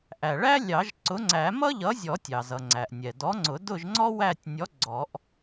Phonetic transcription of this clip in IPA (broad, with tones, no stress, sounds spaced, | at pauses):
ʔ æ˩ ɭ æ˥ lʲ ɑ˨˩˦ ʒ ǀ ʊ˨˥ ŋ͡ǀ æ˨˩˦ m ʌ˥ ʎ ʌ˨˥ zʲ ɔ˨˩˦ tʲ ɑ˩ z ʌ˩ ŋ͡ǀ æ˩ ʔ nʲ ɛ˩ d ɔ˨˥ ŋ͡ǀ ʊ˨˩˦ d ʊ˦˨ ʒ ŋ͡ǀ ɔ˥ w æ˦˨ tʲ nʲ ɔ˨˥ ɡ͡ǀ ɔ˨˩˦ ʔ